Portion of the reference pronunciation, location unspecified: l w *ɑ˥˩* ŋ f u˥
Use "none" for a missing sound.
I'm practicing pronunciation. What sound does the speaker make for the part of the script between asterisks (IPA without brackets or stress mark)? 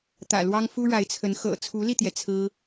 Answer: ɑ˥